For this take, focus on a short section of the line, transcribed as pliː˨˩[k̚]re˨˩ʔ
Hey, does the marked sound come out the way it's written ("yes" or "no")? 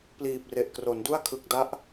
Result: no